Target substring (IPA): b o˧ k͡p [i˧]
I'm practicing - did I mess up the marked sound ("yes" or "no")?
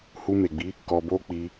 no